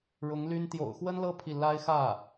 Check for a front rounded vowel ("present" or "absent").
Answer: present